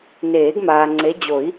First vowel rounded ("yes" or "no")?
no